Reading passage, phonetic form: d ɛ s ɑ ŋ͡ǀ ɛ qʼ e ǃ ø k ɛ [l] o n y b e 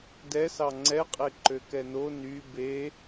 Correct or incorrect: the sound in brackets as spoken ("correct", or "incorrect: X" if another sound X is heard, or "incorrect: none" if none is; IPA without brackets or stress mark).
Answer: incorrect: n